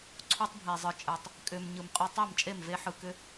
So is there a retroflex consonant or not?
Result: no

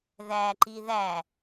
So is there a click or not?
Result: yes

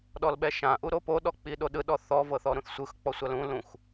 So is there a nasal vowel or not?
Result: yes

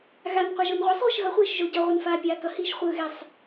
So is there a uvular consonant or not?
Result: yes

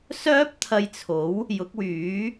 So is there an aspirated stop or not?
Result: yes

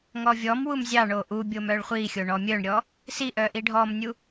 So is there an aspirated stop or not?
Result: no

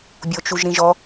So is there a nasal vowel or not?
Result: yes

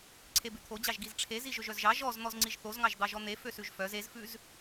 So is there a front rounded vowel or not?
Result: yes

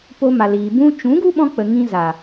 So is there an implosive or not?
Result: yes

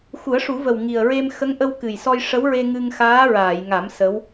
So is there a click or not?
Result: no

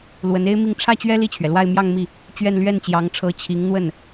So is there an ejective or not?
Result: no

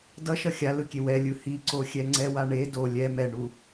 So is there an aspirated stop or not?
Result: no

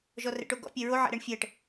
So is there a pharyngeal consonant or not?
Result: yes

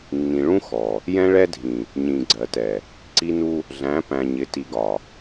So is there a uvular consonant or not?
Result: no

